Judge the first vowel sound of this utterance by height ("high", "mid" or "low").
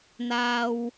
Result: low